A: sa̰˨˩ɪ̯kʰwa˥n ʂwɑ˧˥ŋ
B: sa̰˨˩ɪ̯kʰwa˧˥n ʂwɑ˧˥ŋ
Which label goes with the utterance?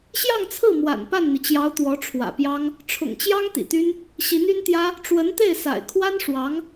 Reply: A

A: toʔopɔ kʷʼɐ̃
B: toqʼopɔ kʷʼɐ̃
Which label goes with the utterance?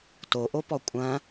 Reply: A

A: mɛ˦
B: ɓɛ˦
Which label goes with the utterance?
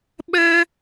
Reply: B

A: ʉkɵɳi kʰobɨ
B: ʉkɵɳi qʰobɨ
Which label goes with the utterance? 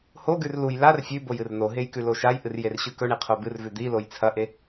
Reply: B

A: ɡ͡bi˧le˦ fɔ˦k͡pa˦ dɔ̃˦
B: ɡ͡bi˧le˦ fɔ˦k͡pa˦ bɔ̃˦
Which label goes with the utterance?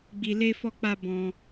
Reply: B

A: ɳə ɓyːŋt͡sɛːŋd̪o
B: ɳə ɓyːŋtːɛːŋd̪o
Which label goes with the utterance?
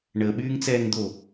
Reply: A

